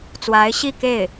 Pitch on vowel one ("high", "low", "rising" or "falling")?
rising